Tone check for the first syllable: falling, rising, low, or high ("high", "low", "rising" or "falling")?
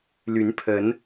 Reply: rising